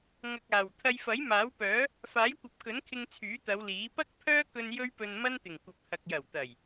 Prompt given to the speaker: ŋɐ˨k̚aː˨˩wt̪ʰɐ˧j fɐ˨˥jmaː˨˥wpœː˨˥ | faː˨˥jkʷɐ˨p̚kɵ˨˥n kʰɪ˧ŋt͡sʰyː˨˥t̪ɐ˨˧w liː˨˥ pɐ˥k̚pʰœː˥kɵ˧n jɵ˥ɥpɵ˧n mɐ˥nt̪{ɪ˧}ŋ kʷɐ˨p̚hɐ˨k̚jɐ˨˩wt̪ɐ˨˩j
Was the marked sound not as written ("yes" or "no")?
yes